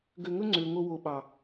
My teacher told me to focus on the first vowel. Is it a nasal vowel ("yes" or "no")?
no